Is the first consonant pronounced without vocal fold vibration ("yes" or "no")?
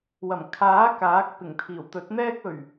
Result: no